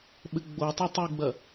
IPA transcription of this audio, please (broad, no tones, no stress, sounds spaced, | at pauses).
ɓ ɘ ɡ͡b o tˤ ɘ tˤ u ɡ͡b ɐ